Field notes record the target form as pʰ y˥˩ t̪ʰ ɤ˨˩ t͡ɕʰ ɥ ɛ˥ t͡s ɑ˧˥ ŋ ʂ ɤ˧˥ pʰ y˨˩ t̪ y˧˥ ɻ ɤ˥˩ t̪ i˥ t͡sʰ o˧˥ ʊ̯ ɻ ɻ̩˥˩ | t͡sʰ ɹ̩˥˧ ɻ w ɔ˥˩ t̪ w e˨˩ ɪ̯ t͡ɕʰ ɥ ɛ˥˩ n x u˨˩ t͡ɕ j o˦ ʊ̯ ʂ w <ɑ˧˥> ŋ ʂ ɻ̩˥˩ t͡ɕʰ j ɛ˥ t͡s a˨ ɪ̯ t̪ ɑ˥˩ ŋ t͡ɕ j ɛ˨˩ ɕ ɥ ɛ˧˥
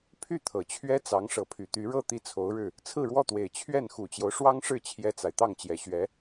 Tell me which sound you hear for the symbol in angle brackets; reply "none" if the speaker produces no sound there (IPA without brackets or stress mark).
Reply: ɑ˥